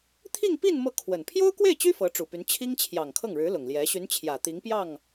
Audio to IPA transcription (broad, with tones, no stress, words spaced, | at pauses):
t̪ʰi˥˧ŋpi˥˧n mɤ˥˩kʰwə˨˩n pʰjo˥ʊ̯kwe˥˩ɪ̯t͡ɕy˥ fɤ˧˥ʈ͡ʂu˨˩py˧˥n t͡ɕʰi˥ŋt͡ɕʰjɑ˨˩ŋkʰɤ˥˩ŋɻɻ̩˧˥ lʊ˨˩ŋljɛ˧˥ ɕy˧˥n t͡ɕʰjä˨˩t̪i˧˥ŋpjɑ˥˩ŋ